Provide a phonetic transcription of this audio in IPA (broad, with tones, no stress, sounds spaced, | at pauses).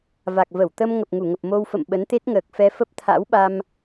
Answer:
v a˨˩ k̚ v ə˧˩ w t̪ ə˧ m ŋ ə˨˩ p̚ ŋ u˧˩ ŋ ə˨˩ p̚ m o˧ w f ə̰˧˨ m ɓ ə˨˦ n t̪ e˦˥ t̚ ŋ əː˨˩ k̚ f ɛ˧ f ə˦˥ p̚ t̪ʰ a̰˧˥ w ɓ a˧ m